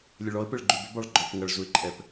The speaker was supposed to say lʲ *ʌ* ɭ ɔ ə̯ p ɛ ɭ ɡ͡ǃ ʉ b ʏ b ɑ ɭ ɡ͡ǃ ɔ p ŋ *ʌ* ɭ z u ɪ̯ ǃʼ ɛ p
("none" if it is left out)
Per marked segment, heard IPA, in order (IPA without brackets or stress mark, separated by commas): ə, ʌ